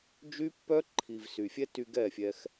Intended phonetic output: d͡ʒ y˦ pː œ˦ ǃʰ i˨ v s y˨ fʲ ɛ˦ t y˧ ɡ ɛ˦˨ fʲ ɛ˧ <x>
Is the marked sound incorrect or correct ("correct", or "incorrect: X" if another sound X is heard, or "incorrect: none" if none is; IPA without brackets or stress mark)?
correct